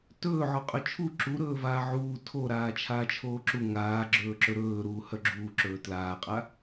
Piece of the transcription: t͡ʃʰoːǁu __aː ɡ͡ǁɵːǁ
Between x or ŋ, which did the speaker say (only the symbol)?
ŋ